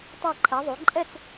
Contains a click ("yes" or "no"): yes